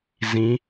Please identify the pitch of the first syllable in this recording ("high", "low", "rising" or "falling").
rising